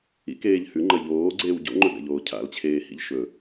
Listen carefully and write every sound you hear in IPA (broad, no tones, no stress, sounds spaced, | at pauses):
ḭ k eː ʎ h ʉ ŋ͡ǃ ɐ ʎ oː ɡ͡ǀ eː w ɟ o̰ ŋ͡ǃ ɵ ɡ a̰ ʎ oː cʰ a̰ l t͡ɕʰ eː h ḭ ʎ ʃ ɵ